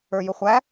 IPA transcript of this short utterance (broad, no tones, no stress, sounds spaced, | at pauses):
ə˞ j ʊ χʷ æ